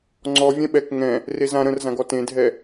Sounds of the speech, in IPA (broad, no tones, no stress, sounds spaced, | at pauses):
ŋ͡ǀ ɔ vʲ ɛ̃ ɓ ɛ k ŋ ɛ̃ | r e z ã ɾ ə̃ r z ã ɡ ɔ t ẽ dʱ ɛ